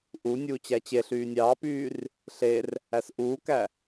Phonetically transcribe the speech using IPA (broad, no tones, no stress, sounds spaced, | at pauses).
ʔ u nʲ uː t͡ɕ æ t͡ɕ e ɬ yː nʲ ɑː p yː r | ɬ e r | æ s ʔ uː k æ